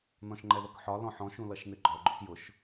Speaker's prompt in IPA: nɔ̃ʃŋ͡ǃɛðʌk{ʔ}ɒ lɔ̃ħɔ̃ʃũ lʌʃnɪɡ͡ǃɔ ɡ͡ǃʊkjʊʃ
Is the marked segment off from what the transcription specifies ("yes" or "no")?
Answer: yes